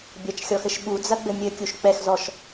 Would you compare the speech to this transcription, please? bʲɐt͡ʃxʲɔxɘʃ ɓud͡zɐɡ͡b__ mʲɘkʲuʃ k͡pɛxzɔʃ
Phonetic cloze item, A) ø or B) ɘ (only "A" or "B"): B